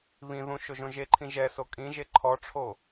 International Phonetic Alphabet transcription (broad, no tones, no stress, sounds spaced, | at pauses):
β ĩ ð ũ ʃ o ʒ õ ʒ e ǃʰ ĩ ʒ ɛ s o kʼ ĩ ʒ e ǃʰ ɔ ʈ͡ʂʰ o